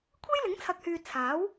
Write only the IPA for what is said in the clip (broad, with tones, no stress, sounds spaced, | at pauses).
kʷʰ e˥ j l ɪ˨˥ ŋ t͡sʰ ɐ˨ k̚ h yː˨ t͡sʰ aː˨˥ w